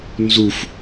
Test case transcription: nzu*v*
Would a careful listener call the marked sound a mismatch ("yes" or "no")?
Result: yes